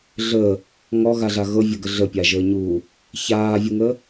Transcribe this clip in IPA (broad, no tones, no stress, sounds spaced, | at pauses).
ɮ əː | ŋ ɔ ɣ a ɮ a ɣ ɤ vʲ ə ɡ ə ɮ ə pʲ a ʒ əː ɲ uː | ç aː vʲ u ŋ əː